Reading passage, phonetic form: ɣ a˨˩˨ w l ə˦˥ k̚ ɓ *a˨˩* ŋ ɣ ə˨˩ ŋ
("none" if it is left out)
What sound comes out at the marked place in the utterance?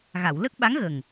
a˧˥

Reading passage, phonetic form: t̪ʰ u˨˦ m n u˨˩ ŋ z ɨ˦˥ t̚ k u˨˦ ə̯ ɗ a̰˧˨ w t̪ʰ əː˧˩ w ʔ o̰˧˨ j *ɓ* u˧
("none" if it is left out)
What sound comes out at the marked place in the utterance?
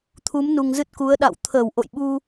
ɓ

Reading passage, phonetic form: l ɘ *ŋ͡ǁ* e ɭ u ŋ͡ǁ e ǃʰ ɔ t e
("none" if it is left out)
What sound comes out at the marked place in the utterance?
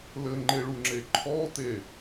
ŋ͡ǃ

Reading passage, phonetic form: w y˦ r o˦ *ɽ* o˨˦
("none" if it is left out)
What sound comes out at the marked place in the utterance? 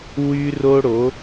ɽ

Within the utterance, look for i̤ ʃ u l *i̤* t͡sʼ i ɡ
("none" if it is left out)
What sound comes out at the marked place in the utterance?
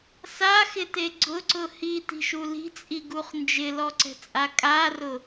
i̤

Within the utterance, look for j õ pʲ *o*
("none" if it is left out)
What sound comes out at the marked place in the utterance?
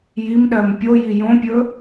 ɵ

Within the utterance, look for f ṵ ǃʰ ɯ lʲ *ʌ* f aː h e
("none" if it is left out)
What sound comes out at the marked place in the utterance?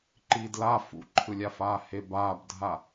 a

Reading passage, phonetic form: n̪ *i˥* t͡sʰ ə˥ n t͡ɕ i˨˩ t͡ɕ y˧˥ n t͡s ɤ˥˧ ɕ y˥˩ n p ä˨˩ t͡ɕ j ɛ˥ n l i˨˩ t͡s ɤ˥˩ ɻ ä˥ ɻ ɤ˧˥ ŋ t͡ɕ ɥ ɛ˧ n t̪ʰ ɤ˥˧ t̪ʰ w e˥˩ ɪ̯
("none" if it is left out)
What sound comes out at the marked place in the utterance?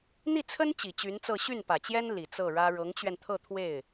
i˥˩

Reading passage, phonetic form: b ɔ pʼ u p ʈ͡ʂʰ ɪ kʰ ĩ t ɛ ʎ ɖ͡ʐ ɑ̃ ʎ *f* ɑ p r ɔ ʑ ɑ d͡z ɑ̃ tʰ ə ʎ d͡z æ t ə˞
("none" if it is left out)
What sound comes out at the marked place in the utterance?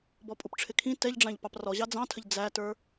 p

